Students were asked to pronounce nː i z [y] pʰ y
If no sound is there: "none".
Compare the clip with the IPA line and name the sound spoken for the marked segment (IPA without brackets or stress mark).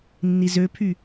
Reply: ø